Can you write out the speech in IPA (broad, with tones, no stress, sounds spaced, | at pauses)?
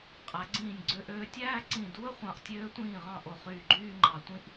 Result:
qʼ æ˩˧ ɡ͡ǀ ĩː˧˩ nʲ ɡ͡ǀ ø˧ ʔ øː˧ tʲ æː˥˧ ǀ ĩ˧˩ d u˥ ə̯ χʷ ɑ̃˧˩ ʔ tʲ øː˧ tʷ ĩː˧˩ ʁ ɑ̃˧˩ ʔ o˧˩ χ yː˧˩ ɡ͡ǃ yː˥˧ ŋ͡ǃ ɑ˧ tʷ ĩ˥ ʔ